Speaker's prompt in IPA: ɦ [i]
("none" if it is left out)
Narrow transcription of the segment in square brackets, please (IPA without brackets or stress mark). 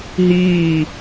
iː